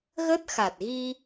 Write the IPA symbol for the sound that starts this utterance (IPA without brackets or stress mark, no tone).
ɣ